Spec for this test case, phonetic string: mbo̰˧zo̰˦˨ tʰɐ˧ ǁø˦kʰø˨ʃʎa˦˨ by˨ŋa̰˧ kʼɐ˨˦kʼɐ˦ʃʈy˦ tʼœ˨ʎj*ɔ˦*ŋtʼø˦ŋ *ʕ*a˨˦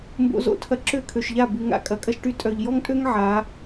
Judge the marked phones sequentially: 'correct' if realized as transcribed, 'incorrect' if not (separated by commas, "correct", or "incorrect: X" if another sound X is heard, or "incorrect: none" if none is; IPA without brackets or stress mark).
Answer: correct, correct